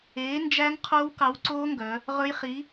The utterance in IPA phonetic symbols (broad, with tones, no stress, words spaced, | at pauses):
eː˨˥nd͡ʒæ˦˥ŋ qʰoː˦˥wkɑ˨˥wǀoː˦˥ŋɡœ˩˧ | ʁɵ˦˥jχi˨˥